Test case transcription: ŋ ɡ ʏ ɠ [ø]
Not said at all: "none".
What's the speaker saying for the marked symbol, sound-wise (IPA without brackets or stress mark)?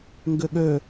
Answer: ø